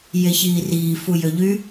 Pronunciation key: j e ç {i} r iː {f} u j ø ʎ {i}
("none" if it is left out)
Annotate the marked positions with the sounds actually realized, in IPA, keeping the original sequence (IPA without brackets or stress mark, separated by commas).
iː, f, y